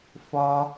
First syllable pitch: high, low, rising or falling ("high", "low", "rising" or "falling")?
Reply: high